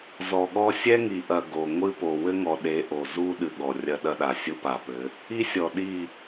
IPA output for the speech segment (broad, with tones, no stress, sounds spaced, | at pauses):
z ɔ˨ ɠ ɔ˦ sʲ ɛ˦ ŋ i˨ ʔ ɐ˨ ɡ o˨ ŋʷ ɨ˦ p o˨ w ɘ˦ ŋ ɔ˨ ɗ e˨˦ ʔ o˨ z u˦ ɗ ɨ˨ ɠ ɔ˨ rʲ ɐ˦ ɗ ɐ˦ ɗ a˨ sʲ u˦ p a˨ p ɘ˨˦ | i˦ sʲ ɔ˨ ɗ i˦˨